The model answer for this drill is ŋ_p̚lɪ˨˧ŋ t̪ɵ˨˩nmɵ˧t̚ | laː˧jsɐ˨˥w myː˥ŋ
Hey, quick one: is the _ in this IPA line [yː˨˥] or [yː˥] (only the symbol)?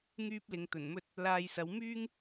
yː˥